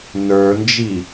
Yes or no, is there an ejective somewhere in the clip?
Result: no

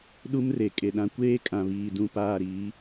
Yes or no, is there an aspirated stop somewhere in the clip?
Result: no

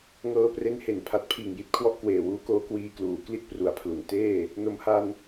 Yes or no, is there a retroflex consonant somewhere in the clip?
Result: no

